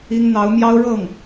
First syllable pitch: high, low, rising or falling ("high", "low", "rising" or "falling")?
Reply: high